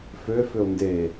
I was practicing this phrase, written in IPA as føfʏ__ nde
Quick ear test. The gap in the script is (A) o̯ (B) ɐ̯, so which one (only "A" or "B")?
A